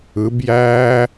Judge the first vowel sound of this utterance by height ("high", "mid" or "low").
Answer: high